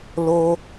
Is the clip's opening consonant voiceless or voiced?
voiced